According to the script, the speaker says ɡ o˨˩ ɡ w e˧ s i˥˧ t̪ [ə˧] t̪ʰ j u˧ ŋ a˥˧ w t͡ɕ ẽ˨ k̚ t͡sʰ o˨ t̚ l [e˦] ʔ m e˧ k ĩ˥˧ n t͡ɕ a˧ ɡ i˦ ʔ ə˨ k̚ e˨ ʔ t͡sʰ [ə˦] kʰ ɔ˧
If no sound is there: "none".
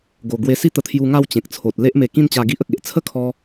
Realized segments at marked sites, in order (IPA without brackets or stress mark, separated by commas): ə˧, e˦, ə˥˧